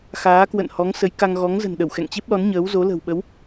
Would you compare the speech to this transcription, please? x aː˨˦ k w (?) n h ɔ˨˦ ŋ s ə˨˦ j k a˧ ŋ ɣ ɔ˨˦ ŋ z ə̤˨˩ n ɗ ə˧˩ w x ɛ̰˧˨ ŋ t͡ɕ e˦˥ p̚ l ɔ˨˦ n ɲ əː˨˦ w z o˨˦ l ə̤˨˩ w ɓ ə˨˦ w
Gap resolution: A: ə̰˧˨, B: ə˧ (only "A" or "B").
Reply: A